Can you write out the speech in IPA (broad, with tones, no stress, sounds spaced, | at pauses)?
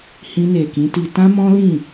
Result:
h ĩ˧ n e˨ k ĩ˨˦ t i˧ t ã˦ m ɔ̃˦ l ĩ˦˨